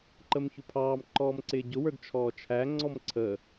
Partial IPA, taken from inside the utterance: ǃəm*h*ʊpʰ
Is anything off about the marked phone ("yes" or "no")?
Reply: yes